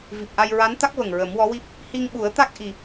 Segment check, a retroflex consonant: absent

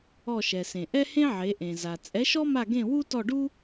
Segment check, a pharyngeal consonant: present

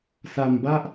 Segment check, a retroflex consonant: absent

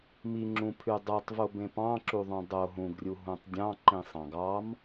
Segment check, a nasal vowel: present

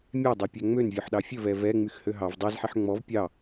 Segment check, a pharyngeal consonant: present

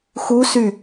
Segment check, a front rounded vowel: present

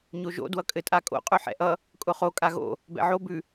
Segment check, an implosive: absent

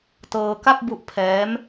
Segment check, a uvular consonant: absent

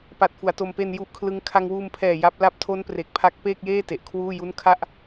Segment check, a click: absent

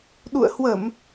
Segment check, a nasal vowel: absent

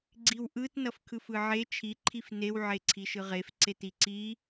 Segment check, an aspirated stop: present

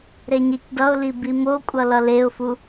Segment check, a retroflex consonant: absent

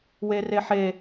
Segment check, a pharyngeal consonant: present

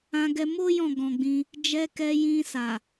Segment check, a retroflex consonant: absent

